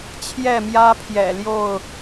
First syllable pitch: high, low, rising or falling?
falling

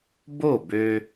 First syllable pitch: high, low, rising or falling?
falling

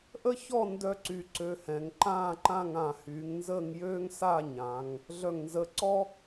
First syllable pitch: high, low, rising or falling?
high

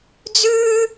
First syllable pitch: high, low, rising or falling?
high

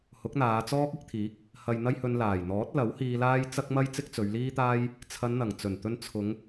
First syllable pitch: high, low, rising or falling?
rising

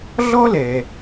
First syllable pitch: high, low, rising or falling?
high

